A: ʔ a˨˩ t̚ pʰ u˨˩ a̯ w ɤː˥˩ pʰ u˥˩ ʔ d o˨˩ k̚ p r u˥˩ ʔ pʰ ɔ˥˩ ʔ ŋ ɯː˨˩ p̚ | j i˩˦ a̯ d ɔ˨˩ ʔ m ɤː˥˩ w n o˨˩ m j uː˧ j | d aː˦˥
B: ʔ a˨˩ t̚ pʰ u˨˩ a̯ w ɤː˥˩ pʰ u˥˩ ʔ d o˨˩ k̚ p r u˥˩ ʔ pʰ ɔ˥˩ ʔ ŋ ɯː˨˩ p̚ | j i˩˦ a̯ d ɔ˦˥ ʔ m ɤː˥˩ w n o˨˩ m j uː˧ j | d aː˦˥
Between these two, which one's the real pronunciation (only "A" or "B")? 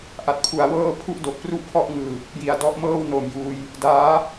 B